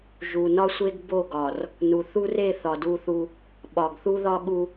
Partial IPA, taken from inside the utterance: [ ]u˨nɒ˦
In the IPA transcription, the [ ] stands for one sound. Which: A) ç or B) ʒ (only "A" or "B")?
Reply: B